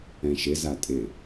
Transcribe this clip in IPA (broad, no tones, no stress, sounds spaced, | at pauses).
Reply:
ɛ̃ ʃ ɪ z a tʼ ɪ